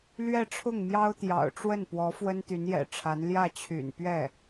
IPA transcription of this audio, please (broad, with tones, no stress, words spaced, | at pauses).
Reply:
lɥɛ˥˧ʈ͡ʂʰʊ˥˩ŋmjɑ˥ʊ̯ t̪jɑ̰˨˩ʊ̯ ʈ͡ʂwə˥˩npwɔ˧˥ fwə˥nt̪y˧˥njɛ̰˨˩ʈ͡ʂʰa˧˥n ljä˥˩t͡ɕʰy̰˨˩npɥɛ˥˩